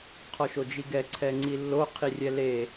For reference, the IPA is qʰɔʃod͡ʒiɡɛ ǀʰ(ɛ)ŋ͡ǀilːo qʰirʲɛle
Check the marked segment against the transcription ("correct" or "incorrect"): correct